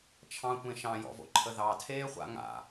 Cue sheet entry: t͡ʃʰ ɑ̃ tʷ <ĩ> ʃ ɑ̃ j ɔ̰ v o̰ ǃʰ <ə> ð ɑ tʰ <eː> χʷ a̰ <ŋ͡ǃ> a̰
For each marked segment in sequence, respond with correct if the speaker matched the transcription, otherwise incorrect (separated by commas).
incorrect, correct, correct, incorrect